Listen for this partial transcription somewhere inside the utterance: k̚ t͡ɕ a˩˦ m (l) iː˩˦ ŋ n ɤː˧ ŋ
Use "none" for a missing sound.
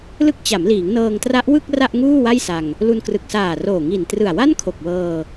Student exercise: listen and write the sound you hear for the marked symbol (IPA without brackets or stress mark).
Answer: l